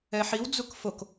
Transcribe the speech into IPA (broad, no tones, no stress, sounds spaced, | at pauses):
ɛ ħ i w d͡z u k f o k